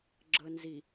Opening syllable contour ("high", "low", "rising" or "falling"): low